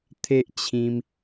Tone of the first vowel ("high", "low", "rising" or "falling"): high